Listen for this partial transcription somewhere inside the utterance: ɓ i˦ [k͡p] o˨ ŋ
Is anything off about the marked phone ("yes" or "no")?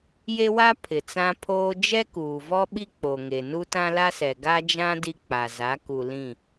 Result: no